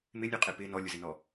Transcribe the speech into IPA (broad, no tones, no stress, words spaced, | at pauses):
mɪnʲuqʼe pɪ nɔlʲʊzɪnɔ